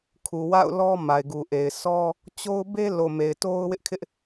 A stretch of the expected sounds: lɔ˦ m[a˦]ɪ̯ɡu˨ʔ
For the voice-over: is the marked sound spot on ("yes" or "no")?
no